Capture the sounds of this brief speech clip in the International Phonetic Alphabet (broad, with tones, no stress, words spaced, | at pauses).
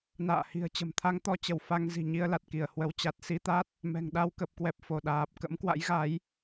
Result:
na̰ː˧˨hi̤˨˩ə̯t͡ɕə̤˨˩m t̪ʰa˧ŋt̪ɔ˧t͡ɕə˧˩w fa˧ŋzi̤˨˩ ɲi˧ə̯la˨˩t̚ki˧˩ə̯ hwə˨˦wt͡ɕa˨˩t̚ si˧t̪a˦˥t̚ | mɛ̤˨˩ŋɗa˧wkə˨˩p̚kwɛ˨˩p̚ fo˧˩ɗaː˨˩p̚ kə̰˧˥mkwa̰˧˥jɣa˨˦j